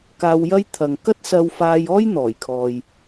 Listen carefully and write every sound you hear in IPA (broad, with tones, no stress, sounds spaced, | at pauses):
k aː˧ w j ɐ˥ j t̪ʰ ɐ˨ ŋ k ɐ˥ t̚ s ɐ˧ w f aː˧ j ɔː˥ j n̪ ɔː˨˩ j kʰ ɔː˨ j